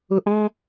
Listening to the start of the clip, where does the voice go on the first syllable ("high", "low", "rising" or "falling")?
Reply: low